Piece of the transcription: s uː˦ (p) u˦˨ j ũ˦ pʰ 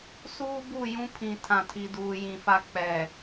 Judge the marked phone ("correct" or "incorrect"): incorrect